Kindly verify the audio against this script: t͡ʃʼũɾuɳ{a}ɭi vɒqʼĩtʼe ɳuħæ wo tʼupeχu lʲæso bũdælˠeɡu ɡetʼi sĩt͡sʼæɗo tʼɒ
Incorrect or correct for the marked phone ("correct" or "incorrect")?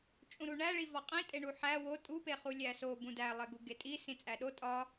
incorrect